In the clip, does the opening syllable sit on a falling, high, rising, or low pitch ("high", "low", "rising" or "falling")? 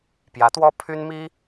rising